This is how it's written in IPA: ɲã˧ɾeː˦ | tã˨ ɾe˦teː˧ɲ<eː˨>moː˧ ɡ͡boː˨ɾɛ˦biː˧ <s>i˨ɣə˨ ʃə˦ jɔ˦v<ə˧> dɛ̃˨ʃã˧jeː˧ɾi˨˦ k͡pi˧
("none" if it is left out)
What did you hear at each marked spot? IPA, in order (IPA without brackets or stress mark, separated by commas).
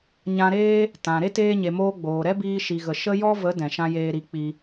e˨, ʃ, ə˨˦